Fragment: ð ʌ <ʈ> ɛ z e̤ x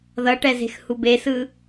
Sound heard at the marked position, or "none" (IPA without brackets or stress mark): ʈ